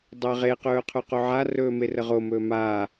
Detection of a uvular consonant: present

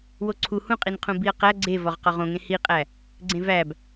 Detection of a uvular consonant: present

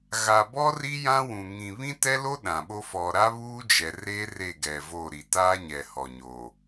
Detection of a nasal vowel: present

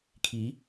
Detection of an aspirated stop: present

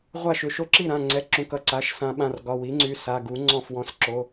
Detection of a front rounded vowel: present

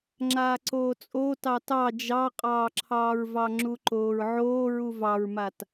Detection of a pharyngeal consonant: present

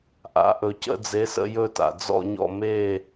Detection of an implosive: absent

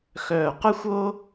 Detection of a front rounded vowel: present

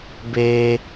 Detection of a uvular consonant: absent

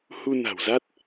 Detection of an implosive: absent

